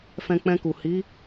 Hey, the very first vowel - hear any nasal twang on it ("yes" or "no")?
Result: yes